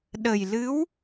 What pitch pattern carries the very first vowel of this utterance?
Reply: low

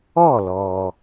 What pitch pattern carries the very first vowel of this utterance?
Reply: falling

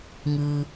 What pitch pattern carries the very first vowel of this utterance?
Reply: low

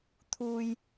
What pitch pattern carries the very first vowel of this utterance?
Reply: low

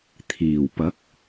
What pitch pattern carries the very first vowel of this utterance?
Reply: low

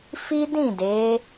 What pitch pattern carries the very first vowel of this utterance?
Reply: high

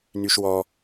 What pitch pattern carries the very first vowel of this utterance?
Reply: high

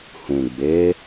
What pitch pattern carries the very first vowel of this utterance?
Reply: low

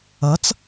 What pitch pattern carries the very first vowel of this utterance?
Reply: rising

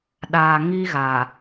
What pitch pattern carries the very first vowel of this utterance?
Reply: low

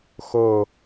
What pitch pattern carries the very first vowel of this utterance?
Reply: falling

